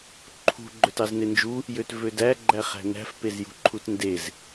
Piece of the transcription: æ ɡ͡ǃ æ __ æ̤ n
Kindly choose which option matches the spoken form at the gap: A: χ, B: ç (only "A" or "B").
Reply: A